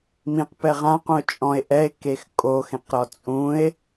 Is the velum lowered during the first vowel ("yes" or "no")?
yes